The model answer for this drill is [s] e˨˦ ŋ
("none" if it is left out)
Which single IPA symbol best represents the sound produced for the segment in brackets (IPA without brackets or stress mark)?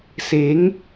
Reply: s